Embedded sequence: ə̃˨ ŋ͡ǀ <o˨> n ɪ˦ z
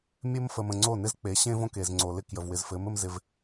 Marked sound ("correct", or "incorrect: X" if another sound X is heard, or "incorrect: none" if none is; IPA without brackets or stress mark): incorrect: o˦˨